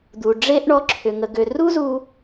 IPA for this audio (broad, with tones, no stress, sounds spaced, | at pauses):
d̪ u˨ ɖ͡ʐ e˦ ʔ ɳ ɔ˧ ǁʰ ʏ˨ ŋ ə˨ ɡ ø˨ r u˦ z u˦